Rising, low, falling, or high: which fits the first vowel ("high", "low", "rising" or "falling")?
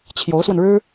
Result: rising